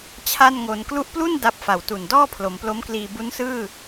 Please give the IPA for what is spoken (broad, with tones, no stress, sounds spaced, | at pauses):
t͡ɕʰ a˥˩ n ŋ o˧ n k l u˦˥ ʔ p l u˥˩ n d a˦˥ p̚ f a˨˩ w t u˨˩ n d ɔː˥˩ pʰ l o˩˦ m p l o˦˥ m k l iː˧ b u˦˥ n s ɯː˥˩